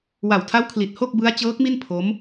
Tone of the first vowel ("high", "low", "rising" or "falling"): low